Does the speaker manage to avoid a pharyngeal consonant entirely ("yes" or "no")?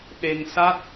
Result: yes